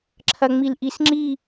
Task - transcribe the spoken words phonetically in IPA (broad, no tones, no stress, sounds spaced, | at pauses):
ǁʰ ɐ ŋ͡m i l ʔ i s ŋ͡ǁ i